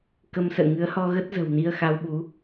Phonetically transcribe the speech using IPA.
k ə˧ m s ə̰ː˧˨ ŋ ɨ˨˦ ə̯ h ɔ˧ ɣ ə˦˥ t̚ z ə̤˨˩ w n i˧ ə̯ x a˧ w ɓ u˨˦

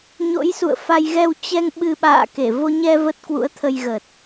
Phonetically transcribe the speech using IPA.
ɲ o̰˧˥ j s ṵ˧˨ ə̯ f a˧ j ɣ ɛ˧ w t͡ɕ ɛ˧ ŋ ɓ ɨ˧ ɓ a̰ː˧˨ k e˧˩ v o˧ ɲ ɛ˧ v ə˦˥ t̚ k w ṵ˧˥ ə̯ t̪ʰ ə˧ j ɣ ə˨˩ t̚

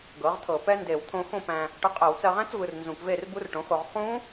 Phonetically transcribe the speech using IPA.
ɡ ɤ˩˥ ʁ t̪ʰ ɤ˧˩˧ p ɛ˦˥ n d e˧˩˧ w t̪ʰ õ˧ x õ˥˨ p æ̃˧ | ʈ ɤ˧ qʼ ɛ˧˩˧ w t͡s ɜ˧ ʁ æ̃˦˥ t͡s v ɯ˧ r n z ũ˧˩˧ k v e˥˨ r b u˦˥ r ʈ õ˩˥ x o˧ ʁ χ ũ˦˥

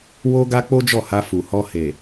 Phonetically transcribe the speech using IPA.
w o˦ ɡ a˦ k͡p o˦ d͡ʒ ɔ˦˨ h a˧ f u˨ h ɔ˧ h e˨

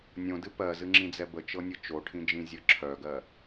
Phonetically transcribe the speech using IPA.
nʲ õ d ɨ p ɜ z ɨ ŋ͡ǁ ĩ d͡z ɛ b ə t͡ʃ ɤ nʲ ɤ t͡ʃ o ʈʰ ĩ d͡ʒ ĩ zʲ ɤ ǁʰ œ ɡ ɜ

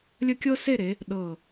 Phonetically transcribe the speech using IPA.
lʲ ə˥˧ kʲ ɤ˥ s e˥˧ ɾ e˩˧ | ɗ ɤ˧˩

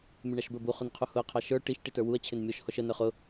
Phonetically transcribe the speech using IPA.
mʲ ʊ ɳ ɑ ʃ b ə˞ b u χ ʊ n qʰ u h ʊ ɐ̯ qʰ ɑ ʃ ə˞ ʈ i ʃ ʈ i t ə˞ w u ɐ̯ t͡ɕʰ ɪ n mʲ ɔ ʃ h ɔ ʃ ə n ə˞ χ ʊ

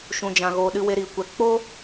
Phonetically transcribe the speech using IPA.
ʃ ũ˨ d͡ʒ ã˨ ɣ oː˨ ɗ ɨ˧ w e˧ ɾ i˨ kʷ ɛ˨ k͡p o˦

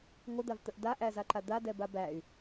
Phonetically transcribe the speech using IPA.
ŋʷ ə d̪ a v t̪ ə ʔ d a ʔ æ z a ǃ a d̪ a d ɛ b a b æ y̯

